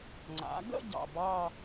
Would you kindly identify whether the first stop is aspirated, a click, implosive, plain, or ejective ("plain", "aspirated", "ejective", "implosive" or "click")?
click